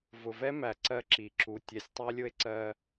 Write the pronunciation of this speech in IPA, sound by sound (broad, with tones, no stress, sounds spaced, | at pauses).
v ʊ˨ v ɛ˦ m æ˨ ǀ ɜ˦ ǁ i˨ ǁ u˨ tʲ ɛ˨ sʲ tˤ æ˦ lʲ ʊ˦ e̯ ǀ ɜ˦